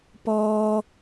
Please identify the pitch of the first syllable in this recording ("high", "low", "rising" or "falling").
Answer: high